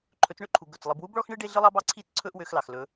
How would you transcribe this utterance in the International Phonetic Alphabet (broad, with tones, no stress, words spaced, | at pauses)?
ǃʰɵ˨˦t͡sɳø˦ǃʰu˨ ɡɵ˨t͡slˠɨ˨˦b wu˦bɭɔ˦xɳɨ˦ ɖe˦ɮɨ˦lˠɑ˦b ɑ˦ǀʰi˦t͡sǀʰɵ˦ʔ wø˦x lɑ˨xlɵ˨˦